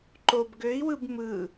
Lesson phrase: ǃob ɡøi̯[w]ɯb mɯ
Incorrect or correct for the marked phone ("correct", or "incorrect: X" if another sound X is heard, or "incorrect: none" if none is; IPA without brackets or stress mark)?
correct